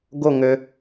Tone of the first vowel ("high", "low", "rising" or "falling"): falling